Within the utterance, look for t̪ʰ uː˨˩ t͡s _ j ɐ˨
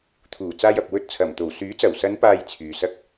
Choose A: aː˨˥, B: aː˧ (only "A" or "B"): B